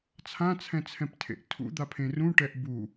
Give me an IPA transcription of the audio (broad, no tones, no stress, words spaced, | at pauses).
t͡sʰãt͡sʰɛ̃t͡sʰɛ̃ptʰḛʔ tʰṵd̪apʰẽ rũʈɛʔ bu